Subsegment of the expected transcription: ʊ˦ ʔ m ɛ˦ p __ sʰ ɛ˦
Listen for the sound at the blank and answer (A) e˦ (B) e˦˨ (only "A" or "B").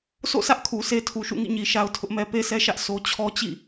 A